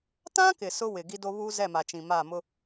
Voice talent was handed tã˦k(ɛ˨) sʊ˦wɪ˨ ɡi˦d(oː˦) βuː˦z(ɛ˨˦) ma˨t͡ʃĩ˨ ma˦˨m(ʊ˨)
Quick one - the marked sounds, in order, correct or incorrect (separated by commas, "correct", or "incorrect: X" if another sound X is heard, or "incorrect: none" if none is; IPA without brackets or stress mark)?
incorrect: ɪ˨, incorrect: o˦, incorrect: ɛ˦˨, incorrect: ʊ˦